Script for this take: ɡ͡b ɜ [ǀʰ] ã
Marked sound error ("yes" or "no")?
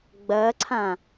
no